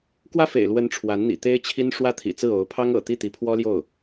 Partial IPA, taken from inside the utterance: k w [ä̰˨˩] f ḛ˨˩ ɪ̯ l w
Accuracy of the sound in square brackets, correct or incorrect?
incorrect